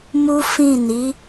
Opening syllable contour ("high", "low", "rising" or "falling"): high